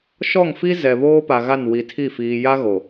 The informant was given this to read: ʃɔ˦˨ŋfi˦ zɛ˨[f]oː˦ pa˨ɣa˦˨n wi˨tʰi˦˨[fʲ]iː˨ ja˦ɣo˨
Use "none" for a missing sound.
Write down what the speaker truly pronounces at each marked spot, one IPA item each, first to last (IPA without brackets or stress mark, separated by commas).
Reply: β, f